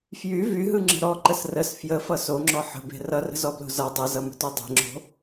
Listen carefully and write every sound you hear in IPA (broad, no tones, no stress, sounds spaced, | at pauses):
f j y v y ɦ ɯ ŋ͡ǁ ə̤ ɾ ɔ ǃ ə s r ə s f j ə f ʌ s o ŋ͡ǁ ɔ ħ ə̤ b e̤ r ʌ r ə̤ z ɔ b l o̤ z ʌ dˤ ɯ z ʌ m ə̤ t y dˤ e̤ ŋ͡ǁ o̤